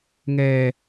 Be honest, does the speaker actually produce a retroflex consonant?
no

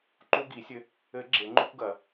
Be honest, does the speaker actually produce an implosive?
no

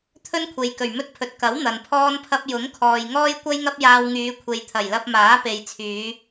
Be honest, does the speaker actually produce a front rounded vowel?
yes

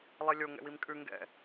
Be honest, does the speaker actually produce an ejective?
yes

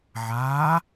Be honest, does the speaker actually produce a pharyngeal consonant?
yes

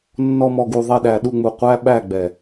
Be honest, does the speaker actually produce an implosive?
yes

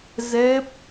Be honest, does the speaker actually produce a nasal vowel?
no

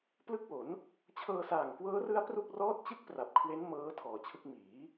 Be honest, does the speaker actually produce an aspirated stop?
yes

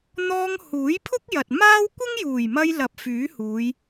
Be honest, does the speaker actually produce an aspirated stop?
yes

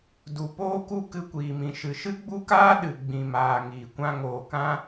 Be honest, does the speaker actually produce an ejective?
no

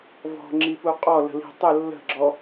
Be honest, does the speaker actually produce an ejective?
yes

